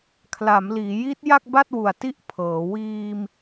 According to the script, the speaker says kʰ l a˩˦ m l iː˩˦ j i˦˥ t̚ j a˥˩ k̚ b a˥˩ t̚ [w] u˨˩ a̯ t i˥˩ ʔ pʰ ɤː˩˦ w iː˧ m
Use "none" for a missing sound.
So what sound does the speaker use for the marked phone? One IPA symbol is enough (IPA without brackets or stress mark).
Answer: w